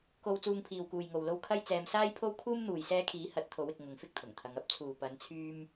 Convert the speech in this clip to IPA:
ko˧w t͡suː˧ŋpʰiː˨wkuː˨jŋo˨w lo˧w kʰɐ˥jt͡sɛː˧m saː˥jpʰo˥wkʰuː˥m n̪uː˨jsɛː˧kʰiː˨˥ hɐ˨˥t̚t̪ʰo˨˥wɪ˨k̚ ŋʊ˨ŋfɪ˥k̚t̪ʰʊ˨˩ŋt̪ʰɐ˨˧ŋ ɐ˥p̚t͡sʰuː˨ pɐ˨˧nt͡sʰyː˧m

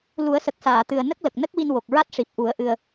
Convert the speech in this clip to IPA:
lu˨˩˦ə̯sə˨˩k̚saː˨˩˨t̪ɨ˨˩ə̯ nə˦˥k̚lə˨˩k̚nə˦˥k̚wi˧n wo˨˩k̚ɹa˦˥t̚ʂi˨˩p̚ ʔu˨˩˦ə̯ ʔɨ˧ə̯

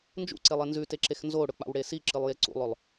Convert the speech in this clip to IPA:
nd͡ʒṵǀelˠe nzʉteǁex nzoɽɵk͡pa̰wɽe siǁɨlˠje ǀṵlˠɵlˠ

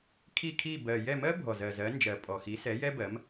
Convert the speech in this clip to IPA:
kʰi˦˨kʰi˦˨ bɜ˨˩ jɛ˦˨mɜ˥ bʱɔ˨˩ zɜ˨˩zɜ˨˥nd͡ʒɜ˨˩ pʼɔ˨˩xi˨˥ sɛ˨˥jɛ˥bɜ˨˥m

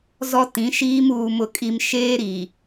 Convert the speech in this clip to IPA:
zɔ˦tĩ˨˦ʃiː˦m uː˨mʊ˨kʼi˨m ʃeː˦ɾi˨

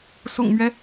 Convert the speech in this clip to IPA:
sʊ̰˨˩ŋmɥɛ˦

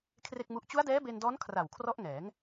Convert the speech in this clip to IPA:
kʰre˥˩k̚mu˦˥ʔ t͡ɕu˦˥a̯dɛː˦˥ be˧ndɔː˦˥n kʰra˨˩wkʰrɔ˦˥ʔŋɛː˩˦ŋ

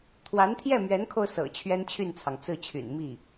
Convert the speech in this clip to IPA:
t̪ʰwa˧˥nt̪ʰjɛ˥˩mɥɛ˧˥nkʰo˧ʊ̯ sɤ̰˨˩ t͡ɕʰɥɛ˥nt͡ɕʰy˥˩nt͡sʰɑ˩ŋ t͡sɹ̩˥˩t͡ɕʰy̰˨˩n mi˥˩

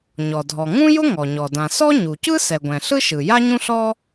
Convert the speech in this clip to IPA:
ɲɔ˩dʱɔ˩ŋũ˥ jʊ˥ŋɔ˩ɲɔ˩ dã˩ sɔ˥ ɲu˩cɯ˥ sɛ˩ɡʷɛ̃˩ ɬɯ˥ʃɯ˩ ja˥ɲũ˥ɬɔ˥

